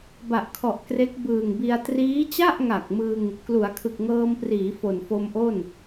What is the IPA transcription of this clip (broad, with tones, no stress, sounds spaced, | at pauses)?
b a˨˩ ʔ kʰ ɔ˨˩ ʔ k r e˦˥ k̚ b ɯː˨˩ ŋ b i˧ a̯ t r iː˦˥ t͡ɕ a˥˩ ʔ ŋ a˨˩ k̚ m ɯ˧ ŋ | k l u˩˦ a̯ kʰ ɯ˨˩ k̚ ŋ ɤː˧ m p r iː˩˦ f o˨˩ n f o˧ m ʔ o˥˩ n